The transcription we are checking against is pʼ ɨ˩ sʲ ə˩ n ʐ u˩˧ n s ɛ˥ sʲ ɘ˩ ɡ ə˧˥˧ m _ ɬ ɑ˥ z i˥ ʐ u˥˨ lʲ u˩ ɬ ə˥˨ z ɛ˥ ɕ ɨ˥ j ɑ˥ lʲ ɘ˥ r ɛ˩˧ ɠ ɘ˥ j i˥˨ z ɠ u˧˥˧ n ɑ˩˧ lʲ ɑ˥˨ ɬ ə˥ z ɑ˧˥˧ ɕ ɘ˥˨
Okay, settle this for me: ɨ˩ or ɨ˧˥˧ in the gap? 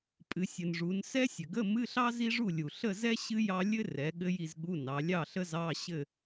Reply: ɨ˧˥˧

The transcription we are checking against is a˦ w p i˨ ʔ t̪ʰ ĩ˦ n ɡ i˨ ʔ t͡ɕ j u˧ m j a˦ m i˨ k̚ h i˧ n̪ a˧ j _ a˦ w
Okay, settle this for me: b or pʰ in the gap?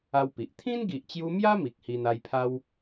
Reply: pʰ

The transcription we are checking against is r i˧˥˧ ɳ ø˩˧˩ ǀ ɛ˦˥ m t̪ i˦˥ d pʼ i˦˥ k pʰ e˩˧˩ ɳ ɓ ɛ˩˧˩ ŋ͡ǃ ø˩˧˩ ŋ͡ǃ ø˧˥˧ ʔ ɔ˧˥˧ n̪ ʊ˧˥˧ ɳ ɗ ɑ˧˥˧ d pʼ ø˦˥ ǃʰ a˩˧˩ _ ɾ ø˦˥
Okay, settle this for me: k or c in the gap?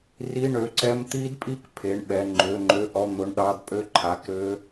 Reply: k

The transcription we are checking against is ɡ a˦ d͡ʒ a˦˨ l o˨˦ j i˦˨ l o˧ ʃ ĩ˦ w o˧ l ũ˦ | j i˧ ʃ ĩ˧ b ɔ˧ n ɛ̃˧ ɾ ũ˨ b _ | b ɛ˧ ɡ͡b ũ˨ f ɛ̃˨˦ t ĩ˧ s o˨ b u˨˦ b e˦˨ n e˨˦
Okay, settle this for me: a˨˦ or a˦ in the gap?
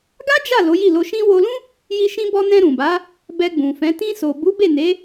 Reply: a˨˦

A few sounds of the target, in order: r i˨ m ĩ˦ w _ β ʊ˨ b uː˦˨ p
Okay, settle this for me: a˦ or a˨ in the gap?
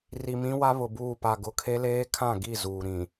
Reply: a˦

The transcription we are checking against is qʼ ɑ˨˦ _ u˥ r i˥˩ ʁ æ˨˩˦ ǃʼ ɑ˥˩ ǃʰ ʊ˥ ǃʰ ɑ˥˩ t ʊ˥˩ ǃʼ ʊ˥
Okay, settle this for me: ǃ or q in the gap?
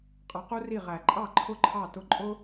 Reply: q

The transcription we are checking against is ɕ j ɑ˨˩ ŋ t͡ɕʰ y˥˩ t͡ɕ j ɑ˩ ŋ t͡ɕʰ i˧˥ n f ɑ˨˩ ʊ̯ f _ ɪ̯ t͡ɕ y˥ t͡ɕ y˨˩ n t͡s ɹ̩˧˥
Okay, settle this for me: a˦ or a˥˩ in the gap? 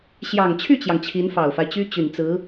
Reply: a˦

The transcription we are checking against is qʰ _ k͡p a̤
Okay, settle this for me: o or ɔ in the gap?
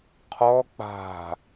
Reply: ɔ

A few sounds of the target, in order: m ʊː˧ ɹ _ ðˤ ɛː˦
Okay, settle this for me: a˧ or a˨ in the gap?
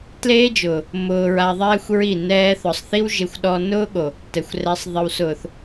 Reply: a˧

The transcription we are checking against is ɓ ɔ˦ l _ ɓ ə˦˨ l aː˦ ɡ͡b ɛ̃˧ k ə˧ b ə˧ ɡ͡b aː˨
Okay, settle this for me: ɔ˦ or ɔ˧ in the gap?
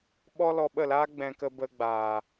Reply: ɔ˧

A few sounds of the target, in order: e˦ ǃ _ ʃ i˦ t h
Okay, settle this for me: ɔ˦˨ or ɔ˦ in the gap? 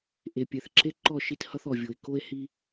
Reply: ɔ˦˨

